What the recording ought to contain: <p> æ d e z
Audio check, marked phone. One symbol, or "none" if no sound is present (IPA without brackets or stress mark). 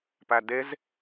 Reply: p